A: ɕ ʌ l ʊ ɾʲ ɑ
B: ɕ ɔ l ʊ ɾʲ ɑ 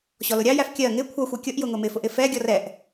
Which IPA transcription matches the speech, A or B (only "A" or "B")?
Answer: B